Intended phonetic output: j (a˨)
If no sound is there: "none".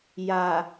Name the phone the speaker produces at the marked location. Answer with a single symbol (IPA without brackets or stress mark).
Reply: a˨